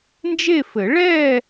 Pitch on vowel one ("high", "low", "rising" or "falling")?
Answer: falling